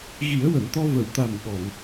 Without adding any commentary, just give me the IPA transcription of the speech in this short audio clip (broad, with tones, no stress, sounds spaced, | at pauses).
ɣ i˨˩˦ ə̯ w ə˨˩˨ m t̪ ɔ˧ v ə˨˩˨ w t̪ a˨˩ m ɓ ɔ˨˩˨ ŋ